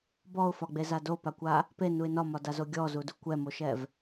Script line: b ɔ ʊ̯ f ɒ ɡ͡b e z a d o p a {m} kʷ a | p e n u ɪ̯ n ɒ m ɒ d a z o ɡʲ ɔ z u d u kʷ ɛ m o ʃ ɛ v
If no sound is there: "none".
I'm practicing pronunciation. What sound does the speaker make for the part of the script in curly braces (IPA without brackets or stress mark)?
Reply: none